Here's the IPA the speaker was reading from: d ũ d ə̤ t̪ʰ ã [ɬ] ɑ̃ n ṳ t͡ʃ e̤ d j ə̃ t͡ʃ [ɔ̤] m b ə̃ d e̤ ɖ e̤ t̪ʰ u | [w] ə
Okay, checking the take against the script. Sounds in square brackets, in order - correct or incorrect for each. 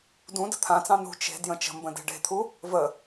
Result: incorrect, incorrect, incorrect

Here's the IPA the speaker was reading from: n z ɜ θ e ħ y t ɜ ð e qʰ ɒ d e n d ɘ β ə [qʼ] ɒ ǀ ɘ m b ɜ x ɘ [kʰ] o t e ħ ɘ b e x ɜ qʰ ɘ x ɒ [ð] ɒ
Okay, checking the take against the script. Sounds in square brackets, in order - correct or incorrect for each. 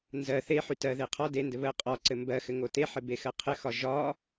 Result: correct, incorrect, incorrect

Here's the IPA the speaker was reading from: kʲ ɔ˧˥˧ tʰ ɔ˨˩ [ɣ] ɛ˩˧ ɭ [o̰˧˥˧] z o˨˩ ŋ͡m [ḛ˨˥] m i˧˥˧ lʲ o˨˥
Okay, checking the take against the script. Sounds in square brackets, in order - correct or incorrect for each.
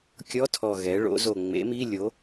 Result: correct, incorrect, correct

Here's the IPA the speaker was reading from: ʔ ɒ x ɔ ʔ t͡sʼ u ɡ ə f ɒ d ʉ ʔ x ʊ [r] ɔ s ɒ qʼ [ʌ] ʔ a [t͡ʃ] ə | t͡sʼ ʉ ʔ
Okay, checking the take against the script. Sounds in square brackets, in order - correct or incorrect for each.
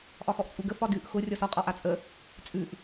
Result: incorrect, incorrect, incorrect

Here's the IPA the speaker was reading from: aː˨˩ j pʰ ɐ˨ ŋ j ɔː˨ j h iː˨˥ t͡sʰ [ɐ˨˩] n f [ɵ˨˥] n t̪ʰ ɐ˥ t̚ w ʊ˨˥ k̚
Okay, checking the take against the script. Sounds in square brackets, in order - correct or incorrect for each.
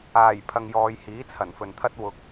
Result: correct, incorrect

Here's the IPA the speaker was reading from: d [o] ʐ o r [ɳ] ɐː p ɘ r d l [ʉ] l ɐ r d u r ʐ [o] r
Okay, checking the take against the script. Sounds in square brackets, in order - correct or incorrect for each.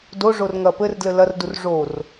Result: correct, incorrect, incorrect, correct

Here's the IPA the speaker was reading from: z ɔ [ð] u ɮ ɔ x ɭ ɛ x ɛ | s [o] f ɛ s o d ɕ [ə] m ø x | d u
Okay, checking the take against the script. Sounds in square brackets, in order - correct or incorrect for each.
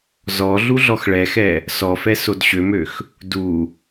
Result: incorrect, incorrect, incorrect

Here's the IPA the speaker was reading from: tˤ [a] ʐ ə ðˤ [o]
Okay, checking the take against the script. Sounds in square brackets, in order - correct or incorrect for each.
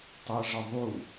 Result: incorrect, incorrect

